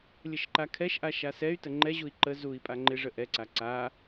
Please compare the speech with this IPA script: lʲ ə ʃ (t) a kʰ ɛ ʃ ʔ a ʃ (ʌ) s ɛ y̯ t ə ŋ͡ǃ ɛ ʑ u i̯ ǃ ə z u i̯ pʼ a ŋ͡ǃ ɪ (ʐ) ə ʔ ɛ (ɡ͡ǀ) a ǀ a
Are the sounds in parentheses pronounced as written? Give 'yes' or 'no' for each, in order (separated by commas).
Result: no, no, yes, no